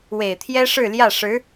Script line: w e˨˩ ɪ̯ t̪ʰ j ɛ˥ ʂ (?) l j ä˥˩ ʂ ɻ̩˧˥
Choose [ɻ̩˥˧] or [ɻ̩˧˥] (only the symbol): ɻ̩˥˧